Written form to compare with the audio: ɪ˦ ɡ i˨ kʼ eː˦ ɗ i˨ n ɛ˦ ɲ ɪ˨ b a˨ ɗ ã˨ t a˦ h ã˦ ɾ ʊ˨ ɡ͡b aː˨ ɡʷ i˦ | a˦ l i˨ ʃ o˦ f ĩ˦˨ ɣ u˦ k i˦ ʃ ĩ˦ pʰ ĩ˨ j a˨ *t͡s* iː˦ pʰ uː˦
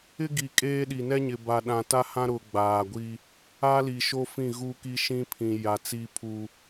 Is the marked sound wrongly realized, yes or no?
no